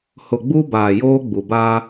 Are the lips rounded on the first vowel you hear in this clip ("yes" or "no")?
yes